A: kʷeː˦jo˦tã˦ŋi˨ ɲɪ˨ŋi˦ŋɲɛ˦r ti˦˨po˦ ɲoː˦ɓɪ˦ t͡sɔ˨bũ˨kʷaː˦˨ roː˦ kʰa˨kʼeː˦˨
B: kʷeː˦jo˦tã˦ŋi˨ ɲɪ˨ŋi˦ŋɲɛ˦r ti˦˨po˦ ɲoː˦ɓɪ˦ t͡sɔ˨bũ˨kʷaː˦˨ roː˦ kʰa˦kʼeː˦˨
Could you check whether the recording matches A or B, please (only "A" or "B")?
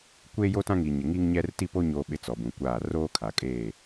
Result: A